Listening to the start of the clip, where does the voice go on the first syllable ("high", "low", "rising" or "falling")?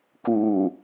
low